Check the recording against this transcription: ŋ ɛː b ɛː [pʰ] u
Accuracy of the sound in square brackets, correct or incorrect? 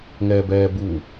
incorrect